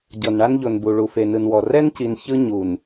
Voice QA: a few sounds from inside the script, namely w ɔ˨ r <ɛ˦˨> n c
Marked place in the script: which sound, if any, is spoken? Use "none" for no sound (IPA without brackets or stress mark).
ɛ˦